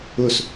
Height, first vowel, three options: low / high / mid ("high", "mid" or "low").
high